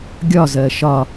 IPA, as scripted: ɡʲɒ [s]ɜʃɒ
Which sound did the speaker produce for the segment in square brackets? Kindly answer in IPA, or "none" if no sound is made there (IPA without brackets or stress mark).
z